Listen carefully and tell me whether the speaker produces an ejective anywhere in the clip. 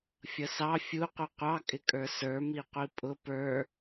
yes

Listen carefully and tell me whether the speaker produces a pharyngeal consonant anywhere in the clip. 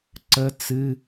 no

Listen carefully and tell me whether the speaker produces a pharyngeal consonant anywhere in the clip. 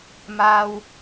no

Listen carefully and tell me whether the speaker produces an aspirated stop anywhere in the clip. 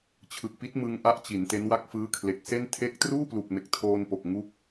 yes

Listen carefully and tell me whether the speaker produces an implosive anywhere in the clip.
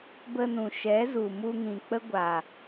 no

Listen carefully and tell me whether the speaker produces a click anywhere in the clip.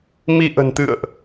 no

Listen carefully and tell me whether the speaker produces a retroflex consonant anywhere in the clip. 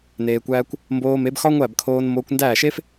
no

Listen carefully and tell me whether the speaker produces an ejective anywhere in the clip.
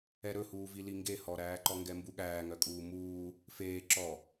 yes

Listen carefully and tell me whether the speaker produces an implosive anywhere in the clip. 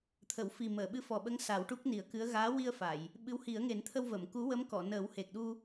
yes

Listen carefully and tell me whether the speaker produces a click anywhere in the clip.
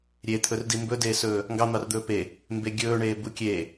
no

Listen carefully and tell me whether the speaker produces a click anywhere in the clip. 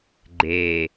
yes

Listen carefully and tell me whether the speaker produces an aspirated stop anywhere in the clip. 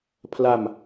yes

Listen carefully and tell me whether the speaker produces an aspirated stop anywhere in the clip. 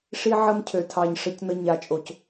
yes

